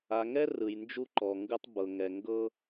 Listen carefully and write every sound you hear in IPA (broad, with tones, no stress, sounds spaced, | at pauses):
a˨ ŋ ɛ˦ r ɯ˨ j n d͡ʒ u˦ ǃ ɔ˨ ŋ ɡ ɯ˦ tˤ b ɤ˨ ŋ ɛ˨ ŋ ɡ ɤ˦